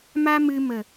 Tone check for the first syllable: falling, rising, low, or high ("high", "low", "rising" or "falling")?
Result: high